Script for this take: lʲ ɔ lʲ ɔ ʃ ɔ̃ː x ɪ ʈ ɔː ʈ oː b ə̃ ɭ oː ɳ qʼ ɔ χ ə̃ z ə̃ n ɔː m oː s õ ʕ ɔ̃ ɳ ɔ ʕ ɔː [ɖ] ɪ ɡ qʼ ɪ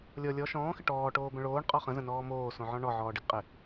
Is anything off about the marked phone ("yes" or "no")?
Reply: no